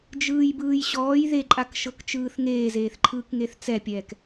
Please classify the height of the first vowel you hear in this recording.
high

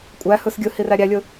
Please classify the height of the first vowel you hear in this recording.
low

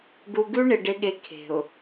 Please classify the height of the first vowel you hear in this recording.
high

